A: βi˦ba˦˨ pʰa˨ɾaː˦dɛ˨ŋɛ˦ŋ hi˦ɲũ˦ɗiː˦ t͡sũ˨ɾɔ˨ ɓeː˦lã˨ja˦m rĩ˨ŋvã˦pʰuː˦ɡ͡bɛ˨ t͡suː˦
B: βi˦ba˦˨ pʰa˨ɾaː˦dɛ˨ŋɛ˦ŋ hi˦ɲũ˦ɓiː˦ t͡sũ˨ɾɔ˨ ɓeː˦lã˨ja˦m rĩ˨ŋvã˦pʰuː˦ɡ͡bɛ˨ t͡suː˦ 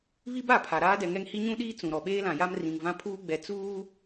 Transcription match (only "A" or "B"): A